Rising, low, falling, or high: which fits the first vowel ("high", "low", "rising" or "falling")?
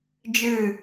falling